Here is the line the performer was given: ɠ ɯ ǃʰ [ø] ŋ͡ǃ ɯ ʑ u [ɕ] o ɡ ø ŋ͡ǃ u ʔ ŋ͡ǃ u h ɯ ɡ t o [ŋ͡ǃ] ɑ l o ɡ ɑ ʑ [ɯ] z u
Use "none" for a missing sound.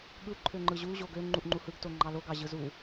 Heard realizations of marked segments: ø, ʑ, ŋ͡ǃ, ɯ

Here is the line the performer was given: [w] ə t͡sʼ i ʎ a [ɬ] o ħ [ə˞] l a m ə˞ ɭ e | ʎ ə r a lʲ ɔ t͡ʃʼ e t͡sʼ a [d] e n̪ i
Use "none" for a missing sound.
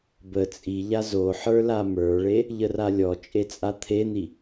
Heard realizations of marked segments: b, z, ə˞, t̪ʰ

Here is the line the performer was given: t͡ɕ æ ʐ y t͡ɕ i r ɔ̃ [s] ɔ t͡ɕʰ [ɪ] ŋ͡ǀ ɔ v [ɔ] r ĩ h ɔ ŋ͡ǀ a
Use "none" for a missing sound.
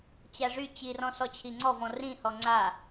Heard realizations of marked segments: s, i, ɔ̃

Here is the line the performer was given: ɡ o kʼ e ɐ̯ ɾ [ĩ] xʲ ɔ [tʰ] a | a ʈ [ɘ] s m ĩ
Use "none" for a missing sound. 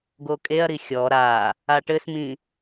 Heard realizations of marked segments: i, ɾ, ɘ

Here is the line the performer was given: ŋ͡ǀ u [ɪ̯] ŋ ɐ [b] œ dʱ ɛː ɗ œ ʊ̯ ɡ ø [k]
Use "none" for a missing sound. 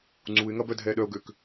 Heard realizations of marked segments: ɪ̯, b, k

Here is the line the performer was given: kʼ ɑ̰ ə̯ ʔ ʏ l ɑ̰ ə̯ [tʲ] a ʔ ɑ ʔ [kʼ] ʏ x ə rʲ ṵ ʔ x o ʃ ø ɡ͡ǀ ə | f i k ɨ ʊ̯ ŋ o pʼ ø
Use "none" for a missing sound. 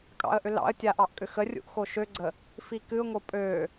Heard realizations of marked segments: tʲ, kʼ

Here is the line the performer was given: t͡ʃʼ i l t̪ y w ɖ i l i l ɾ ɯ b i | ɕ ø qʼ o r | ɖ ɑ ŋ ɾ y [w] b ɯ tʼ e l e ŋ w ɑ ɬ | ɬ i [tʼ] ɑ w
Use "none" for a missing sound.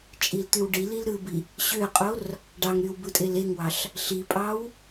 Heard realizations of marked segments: w, pʼ

